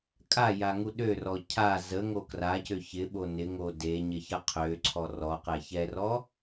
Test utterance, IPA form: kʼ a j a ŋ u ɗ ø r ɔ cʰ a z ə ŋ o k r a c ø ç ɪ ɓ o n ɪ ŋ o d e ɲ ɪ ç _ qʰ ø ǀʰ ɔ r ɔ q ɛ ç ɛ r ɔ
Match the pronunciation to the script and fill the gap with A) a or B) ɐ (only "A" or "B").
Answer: B